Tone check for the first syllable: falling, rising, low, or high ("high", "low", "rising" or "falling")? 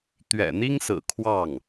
low